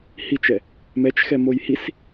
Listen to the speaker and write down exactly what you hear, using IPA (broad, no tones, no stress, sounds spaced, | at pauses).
h i t͡ʃ ɛ | m ɛ t͡ʃ x ɛ m o j h i s